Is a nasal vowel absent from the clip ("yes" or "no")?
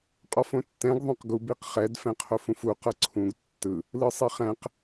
no